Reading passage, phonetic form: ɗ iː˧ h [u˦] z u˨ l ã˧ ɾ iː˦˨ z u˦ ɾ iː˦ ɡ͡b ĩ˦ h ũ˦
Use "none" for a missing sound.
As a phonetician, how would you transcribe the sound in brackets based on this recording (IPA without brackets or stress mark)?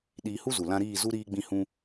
u˦